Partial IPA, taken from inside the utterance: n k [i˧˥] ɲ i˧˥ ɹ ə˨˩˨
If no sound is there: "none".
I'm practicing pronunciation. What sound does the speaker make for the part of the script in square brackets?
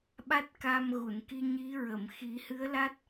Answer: i˧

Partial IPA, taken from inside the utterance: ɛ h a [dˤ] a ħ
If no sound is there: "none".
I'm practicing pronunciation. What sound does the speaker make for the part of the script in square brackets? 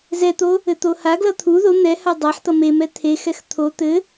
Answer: dˤ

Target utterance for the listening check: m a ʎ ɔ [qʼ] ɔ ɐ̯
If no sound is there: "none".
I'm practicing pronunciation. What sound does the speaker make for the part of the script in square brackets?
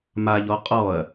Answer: qʼ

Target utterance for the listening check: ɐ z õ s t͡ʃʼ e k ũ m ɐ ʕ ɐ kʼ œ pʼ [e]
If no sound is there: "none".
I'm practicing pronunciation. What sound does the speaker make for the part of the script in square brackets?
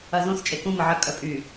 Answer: y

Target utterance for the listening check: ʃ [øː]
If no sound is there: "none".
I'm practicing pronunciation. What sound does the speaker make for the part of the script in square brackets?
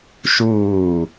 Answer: uː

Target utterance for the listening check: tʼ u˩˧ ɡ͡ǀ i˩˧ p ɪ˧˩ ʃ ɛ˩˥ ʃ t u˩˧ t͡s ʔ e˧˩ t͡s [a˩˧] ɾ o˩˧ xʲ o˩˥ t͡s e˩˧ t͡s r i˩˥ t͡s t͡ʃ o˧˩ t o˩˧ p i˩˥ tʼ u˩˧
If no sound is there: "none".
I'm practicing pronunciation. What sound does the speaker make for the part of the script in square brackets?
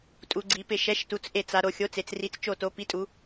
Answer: a˩˧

